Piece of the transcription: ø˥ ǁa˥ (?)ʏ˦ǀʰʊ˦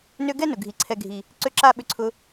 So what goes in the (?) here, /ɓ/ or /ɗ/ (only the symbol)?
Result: ɓ